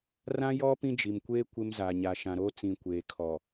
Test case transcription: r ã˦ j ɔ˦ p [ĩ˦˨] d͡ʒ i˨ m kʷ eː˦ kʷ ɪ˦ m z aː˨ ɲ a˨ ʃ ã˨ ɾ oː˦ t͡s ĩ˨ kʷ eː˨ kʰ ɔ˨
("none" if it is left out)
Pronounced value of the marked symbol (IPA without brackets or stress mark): ĩ˦